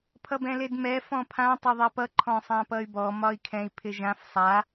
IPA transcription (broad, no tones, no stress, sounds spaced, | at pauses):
pʰ ʌ b ɛ̃ l e d m ɛ f ɔ̃ pʰ ã tˤ ʌ ðˤ ɛ p ʌ ǃʰ ɔ̃ sˤ ã p ʌ y̯ b ɔ m ɒ i̯ kʰ ɛ̃ i̯ pʰ ɪ ʒ ã f sˤ a